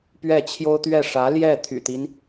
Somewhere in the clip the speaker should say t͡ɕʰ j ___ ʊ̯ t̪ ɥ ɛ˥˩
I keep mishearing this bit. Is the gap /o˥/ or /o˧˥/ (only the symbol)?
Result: o˥